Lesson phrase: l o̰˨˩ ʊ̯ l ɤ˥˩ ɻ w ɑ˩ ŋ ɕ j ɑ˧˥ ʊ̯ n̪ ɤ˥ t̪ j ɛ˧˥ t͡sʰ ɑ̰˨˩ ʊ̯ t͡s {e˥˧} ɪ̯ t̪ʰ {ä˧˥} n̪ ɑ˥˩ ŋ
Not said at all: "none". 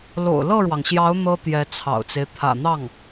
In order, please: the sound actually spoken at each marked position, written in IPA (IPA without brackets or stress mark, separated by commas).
e˦, ä̰˨˩